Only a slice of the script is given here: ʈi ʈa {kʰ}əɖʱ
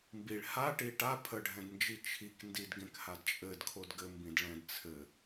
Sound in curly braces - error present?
yes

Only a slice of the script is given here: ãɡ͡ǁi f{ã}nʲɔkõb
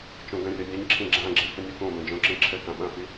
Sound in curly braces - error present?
yes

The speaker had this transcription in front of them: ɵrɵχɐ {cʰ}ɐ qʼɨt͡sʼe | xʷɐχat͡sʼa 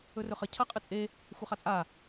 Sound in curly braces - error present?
no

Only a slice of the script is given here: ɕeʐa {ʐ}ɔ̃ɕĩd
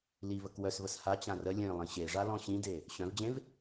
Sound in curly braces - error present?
yes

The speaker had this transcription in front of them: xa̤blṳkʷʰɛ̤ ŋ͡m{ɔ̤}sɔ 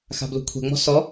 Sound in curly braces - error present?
no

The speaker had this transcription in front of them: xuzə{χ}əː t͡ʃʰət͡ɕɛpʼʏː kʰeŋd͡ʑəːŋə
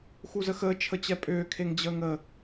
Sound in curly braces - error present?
yes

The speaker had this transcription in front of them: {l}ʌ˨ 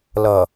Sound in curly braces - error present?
no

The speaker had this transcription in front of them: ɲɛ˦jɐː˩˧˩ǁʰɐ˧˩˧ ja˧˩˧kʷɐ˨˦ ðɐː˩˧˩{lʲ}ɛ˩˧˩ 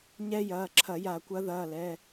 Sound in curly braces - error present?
yes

